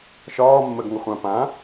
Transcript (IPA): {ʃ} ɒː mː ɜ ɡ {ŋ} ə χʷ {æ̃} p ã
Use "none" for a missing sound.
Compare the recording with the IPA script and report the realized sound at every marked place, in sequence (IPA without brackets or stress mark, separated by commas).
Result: ʃ, ŋ, ã